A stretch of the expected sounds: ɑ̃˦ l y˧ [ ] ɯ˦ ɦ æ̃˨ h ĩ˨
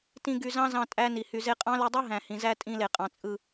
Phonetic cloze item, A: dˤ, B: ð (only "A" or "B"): A